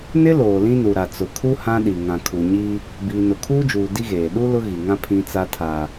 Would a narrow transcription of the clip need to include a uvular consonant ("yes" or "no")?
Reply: no